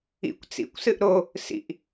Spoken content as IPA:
ḭ kʷ t͡s ḭ kʷ s ɨ ʔ ɾ o | s ḭ ʔ

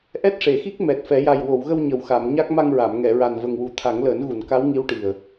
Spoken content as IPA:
ʔ ɛ˦˥ t̚ ʂ e˨˩˨ x i˦˥ k̚ m ɛ˨˩ t̚ f ɛ˨˩˦ j a˨˩ j w o˨˩˨ w ɣ ə˧ w ɲ ə˨˩ w x a˨˩˨ m ɲ a˦˥ k̚ m a˧ ŋ ɹ a˨˩˨ m ŋ ɛ˨˩˨ ɹ a˨˩ n v ə˨˩ ŋ w u˨˩˦ t̪ʰ a˨˩˦ ŋ l əː˨˩˦ n ɣ u˨˩˨ n k a˧˥ w ŋ i˧˥ w ʈ i˨˩ ə̯

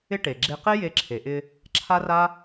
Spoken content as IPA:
ɪ˥ ʈ e˩ ɡ͡ǁ e˧ q e˥ j e˧ ǁʰ e˩ ʔ ɪ˧ | ǁʰ a˥ r a˥

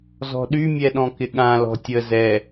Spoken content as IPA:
z ɔ̤ ɗ y mʲ ɛ ɗ ɔ̃ k ɪ ɠ ã l ɔ̤ tʲ ə z ɛ

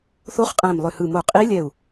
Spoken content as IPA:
θ o˧˥ χ qʼ æ̃˧˩ m lˠ ʏ˧˩ h ɯ˧˩ m o˧˩ qʼ i˧˥ lʲ ɛ˧˩ u̯

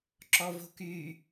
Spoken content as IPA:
ǁ ɔ v o̤ k y

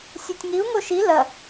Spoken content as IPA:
sʲ ɛ tʲ ŋ i u̯ ŋ o ʃ i l ɐ

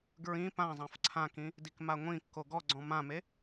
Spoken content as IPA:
ɡ ɹ ĩ p ã zˤ ã f ǀʰ ã k ĩ | d i k m a ŋʷ ĩ kː o ɡ ɔ ɡ͡ǀ ɔ̃ m ã m e

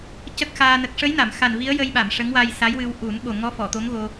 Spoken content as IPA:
c ə˦˥ k̚ x aː˧ n ə˨˩ k̚ ʂ ə˧˥ j n a˨˩˨ m x a˨˩ n v i˧˥ ə̯ j ə˧ j ɓ a˨˩˨ m ʂ ə˧˥ ŋ w a˧ j s a˧˥ j w ɨ˧ w ʔ u˨˩˦ n ɓ o˨˩ ŋ ɔ˧˥ f ɔ˨˩˨ t̪ o˧˥ ŋ ɣ o˧

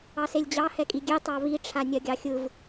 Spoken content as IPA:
ɑ s e lʲ d͡ʑ ɑ h ɛ kʼ i ɡʲ e tˤ ɑ β i ʈ͡ʂʰ a nʲ ɜ ɡʲ ɑ xʲ ɯ v

